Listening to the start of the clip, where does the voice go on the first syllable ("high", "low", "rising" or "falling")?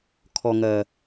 low